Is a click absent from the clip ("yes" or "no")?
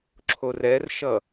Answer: no